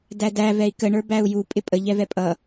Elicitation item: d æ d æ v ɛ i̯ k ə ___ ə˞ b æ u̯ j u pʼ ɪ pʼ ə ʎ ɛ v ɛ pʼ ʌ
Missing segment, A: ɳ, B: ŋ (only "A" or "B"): A